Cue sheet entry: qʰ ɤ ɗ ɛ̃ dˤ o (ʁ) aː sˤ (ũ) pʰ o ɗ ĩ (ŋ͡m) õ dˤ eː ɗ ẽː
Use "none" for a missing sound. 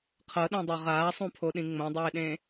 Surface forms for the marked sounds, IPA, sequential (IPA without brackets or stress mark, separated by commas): ʁ, ũ, ŋ͡m